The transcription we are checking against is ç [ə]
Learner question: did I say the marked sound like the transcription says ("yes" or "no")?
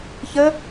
yes